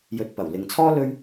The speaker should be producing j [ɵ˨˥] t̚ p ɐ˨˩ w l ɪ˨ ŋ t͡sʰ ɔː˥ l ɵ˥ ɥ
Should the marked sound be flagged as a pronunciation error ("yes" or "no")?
yes